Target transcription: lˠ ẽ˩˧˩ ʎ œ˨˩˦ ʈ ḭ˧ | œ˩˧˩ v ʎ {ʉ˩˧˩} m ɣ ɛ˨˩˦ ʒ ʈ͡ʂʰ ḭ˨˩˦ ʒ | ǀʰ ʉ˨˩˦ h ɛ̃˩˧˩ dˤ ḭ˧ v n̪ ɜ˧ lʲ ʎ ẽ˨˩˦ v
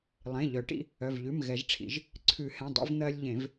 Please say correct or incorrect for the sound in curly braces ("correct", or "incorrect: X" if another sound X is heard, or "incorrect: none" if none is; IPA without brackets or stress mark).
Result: correct